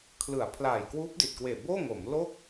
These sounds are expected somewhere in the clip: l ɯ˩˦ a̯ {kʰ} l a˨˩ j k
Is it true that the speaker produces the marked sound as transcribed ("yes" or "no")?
no